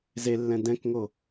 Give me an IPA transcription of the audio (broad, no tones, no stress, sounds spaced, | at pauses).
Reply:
z e lː ɛ̃ d ɛ̃ k ŋ o